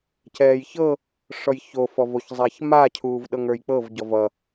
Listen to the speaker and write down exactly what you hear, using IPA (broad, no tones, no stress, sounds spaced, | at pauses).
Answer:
c ɛː j ç ɤ | ʂ ɔ j ç o f ɔ v o ç zˤ a ç m a cʰ uː v ɗ ɤ ŋ ə˞ j k͡p ɤ v ɟ ɔ v ʌ